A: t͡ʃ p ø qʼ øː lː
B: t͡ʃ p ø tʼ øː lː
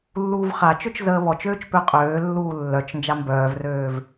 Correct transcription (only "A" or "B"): A